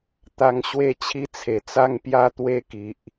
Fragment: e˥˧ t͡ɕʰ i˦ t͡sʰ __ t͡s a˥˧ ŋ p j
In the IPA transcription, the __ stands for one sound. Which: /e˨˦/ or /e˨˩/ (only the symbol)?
e˨˩